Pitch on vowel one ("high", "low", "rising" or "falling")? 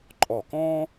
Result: falling